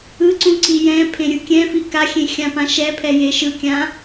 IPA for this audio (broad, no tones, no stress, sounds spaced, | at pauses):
ɯ ǀ ũ ǀ i j ɛ̃ pʰ ẽ ɾʲ ɯ kʲ ɛ̃ f i k a xʲ ẽ xʲ ã p ã ʃ ɛ pʰ ɛ j e ʃ ɯ kʲ ã